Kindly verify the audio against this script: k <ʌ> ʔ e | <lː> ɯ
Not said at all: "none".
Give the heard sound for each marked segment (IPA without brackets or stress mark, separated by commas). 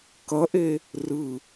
ʌ, r